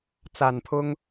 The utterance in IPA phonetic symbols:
t͡sa˨˩npʰʊ˥ŋ

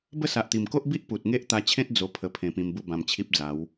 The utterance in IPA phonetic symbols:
bə˥˧sa˨ʔ t̪i˨˩mko˦ʔbi˦ʔ pu˨t̚ŋe˦ʔt̪a˧t͡ɕʰẽ˦t̚ d͡zo˧pʰə˧ pʰẽ˧pĩ˧mbu˥˧ bã˧mt͡ɕʰi˦p̚d͡za˨˦w

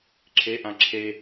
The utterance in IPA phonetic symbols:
ǁʰeʔã ǁʰe

